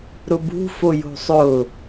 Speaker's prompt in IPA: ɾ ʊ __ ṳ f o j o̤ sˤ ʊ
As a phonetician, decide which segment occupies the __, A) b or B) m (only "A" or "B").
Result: A